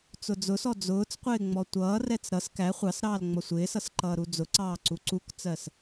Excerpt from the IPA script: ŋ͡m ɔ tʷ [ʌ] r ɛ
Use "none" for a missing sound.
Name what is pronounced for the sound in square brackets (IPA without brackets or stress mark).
ʌː